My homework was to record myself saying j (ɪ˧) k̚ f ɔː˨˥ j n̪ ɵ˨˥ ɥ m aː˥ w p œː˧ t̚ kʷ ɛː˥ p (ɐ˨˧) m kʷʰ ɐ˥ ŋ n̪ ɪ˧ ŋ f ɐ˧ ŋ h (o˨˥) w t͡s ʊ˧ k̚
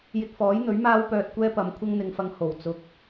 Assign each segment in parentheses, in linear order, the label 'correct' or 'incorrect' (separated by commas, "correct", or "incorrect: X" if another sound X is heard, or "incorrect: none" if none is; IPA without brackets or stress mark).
correct, correct, incorrect: o˨˩